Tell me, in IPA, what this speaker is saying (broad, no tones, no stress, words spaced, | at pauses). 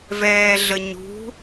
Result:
vɛːɮəɲṳ